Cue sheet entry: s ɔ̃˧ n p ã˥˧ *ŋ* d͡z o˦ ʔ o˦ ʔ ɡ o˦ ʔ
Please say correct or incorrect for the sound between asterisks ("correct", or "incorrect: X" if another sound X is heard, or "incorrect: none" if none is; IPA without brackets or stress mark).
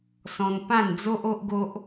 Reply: incorrect: n